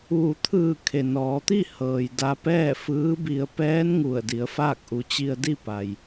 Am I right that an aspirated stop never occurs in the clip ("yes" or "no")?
no